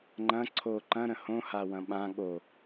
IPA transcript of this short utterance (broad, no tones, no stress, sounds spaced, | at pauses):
ŋ͡ǃ ɐ̃ ǀʰ o ǃ ɐ̃ ɾ ə̃ h õ h a w ɐ̃ ɓ ã ɠ o